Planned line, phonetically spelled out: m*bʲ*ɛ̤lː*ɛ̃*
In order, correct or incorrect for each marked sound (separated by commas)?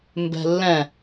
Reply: incorrect, correct